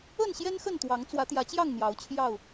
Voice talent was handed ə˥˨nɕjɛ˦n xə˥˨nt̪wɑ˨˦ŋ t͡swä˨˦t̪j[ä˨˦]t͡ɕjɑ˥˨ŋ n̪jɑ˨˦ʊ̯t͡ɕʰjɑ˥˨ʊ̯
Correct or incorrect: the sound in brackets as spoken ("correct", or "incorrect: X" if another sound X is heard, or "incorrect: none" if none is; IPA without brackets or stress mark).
correct